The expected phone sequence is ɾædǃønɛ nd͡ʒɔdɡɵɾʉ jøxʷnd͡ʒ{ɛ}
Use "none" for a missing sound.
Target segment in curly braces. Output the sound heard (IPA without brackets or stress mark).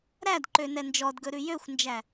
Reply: æ